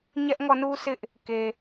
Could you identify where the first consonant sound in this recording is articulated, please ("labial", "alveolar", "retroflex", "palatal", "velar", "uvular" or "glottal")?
palatal